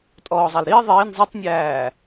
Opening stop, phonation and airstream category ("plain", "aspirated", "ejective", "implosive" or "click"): ejective